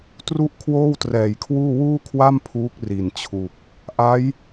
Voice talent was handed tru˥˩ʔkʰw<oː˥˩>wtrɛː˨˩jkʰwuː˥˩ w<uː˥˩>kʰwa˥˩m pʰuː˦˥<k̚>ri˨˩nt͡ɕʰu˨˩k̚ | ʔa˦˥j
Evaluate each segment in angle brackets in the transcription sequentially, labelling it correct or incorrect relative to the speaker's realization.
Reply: correct, correct, correct

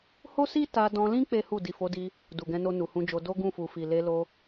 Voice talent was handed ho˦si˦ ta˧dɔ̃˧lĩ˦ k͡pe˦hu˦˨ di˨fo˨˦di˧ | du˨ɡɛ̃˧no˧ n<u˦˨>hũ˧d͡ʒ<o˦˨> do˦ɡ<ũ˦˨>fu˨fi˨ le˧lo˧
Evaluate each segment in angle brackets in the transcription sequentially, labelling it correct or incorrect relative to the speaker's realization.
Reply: incorrect: u˨, incorrect: o˧, correct

